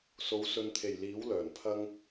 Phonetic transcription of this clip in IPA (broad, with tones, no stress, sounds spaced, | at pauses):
s o˨˧ w s ɵ˨ n t̪ʰ e˨˩ j l iː˨˥ w l œː˨˩ n pʰ ɐ˥ ŋ